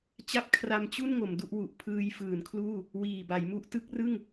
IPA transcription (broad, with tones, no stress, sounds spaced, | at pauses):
t͡ɕ a˥˩ p̚ kʰ r a˧ m t͡ɕ u˥˩ n ŋ o˩˦ m d u˥˩ ʔ w u˨˩ ʔ pʰ ɯː˧ j f ɯː˩˦ n kʰ l uː˥˩ | w iː˨˩ b a˩˦ j m u˦˥ ʔ t ɯ˦˥ k̚ r ɯ˥˩ ŋ